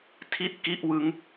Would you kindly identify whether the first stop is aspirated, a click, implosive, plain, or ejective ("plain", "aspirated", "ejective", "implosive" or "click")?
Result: aspirated